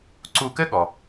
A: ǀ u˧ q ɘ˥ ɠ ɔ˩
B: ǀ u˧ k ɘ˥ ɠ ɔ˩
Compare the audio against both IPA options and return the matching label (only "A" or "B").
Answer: B